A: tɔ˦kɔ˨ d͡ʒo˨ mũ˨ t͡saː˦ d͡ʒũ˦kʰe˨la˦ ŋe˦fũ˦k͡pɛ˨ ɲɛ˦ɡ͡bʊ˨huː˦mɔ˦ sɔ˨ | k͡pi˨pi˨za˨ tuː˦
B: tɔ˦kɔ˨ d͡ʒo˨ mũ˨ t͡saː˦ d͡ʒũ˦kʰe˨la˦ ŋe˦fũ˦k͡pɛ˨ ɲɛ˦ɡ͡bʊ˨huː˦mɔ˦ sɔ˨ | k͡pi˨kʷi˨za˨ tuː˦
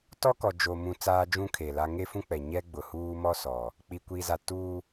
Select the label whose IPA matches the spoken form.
B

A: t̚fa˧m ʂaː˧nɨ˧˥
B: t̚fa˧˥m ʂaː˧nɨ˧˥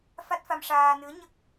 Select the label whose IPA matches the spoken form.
A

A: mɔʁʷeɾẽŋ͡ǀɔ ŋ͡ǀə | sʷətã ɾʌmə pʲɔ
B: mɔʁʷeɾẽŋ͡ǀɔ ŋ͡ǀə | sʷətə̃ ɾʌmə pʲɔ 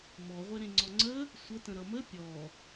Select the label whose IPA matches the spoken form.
B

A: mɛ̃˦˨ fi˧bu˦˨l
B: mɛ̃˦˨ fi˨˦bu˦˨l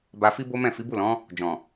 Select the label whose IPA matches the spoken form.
B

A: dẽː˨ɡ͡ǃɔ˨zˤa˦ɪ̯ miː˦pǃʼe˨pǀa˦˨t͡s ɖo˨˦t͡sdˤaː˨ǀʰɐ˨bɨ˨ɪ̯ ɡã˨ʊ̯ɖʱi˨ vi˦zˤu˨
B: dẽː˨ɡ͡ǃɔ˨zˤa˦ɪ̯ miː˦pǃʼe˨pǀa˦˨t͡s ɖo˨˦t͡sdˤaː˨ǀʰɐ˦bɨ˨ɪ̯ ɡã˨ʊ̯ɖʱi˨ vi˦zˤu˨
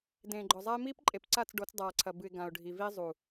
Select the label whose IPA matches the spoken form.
A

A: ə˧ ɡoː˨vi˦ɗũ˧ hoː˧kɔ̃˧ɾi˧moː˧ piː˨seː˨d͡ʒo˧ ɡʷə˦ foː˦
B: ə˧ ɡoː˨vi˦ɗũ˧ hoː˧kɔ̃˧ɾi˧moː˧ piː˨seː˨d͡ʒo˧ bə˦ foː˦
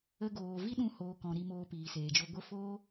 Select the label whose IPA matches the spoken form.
A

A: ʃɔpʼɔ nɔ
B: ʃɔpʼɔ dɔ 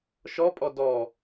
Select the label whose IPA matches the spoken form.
B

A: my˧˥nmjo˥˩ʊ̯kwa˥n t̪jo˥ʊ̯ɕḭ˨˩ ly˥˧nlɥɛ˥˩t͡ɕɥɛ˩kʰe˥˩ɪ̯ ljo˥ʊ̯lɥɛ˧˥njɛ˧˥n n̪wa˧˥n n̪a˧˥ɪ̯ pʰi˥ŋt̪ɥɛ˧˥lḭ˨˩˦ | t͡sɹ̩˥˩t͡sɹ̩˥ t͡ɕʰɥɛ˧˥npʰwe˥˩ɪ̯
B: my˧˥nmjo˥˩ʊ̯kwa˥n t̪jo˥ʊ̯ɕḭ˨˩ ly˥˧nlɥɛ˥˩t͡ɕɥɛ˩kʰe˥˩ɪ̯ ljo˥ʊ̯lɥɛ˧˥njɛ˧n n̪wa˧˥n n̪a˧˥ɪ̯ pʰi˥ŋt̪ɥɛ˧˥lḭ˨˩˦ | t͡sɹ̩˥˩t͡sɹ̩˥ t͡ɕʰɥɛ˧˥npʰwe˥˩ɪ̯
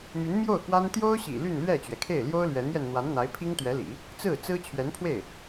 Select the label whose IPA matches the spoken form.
B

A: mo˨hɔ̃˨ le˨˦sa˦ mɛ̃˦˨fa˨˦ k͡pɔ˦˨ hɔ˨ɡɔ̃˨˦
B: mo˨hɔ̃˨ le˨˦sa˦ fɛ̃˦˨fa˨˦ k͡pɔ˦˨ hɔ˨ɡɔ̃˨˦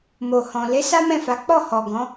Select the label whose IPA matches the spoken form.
A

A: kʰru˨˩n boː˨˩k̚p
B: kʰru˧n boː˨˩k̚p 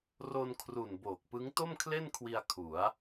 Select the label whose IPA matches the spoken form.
A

